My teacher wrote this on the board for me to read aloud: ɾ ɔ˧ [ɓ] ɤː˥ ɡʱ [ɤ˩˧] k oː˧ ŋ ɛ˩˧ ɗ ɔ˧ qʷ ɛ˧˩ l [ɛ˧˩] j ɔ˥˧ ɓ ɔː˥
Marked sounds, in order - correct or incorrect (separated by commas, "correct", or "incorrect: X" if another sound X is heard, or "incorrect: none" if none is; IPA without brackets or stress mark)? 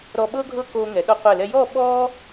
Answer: correct, incorrect: ɤ˥, incorrect: ɛ˧